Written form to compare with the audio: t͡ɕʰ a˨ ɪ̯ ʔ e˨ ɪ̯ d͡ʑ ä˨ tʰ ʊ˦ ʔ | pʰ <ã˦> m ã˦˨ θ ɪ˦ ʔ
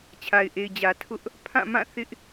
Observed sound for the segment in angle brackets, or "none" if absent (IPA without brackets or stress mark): ã˦˨